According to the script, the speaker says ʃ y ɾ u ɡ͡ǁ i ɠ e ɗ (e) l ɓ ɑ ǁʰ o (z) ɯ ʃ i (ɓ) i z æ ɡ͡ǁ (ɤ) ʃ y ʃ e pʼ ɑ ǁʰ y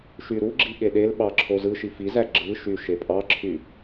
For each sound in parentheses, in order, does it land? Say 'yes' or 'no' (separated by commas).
yes, yes, no, no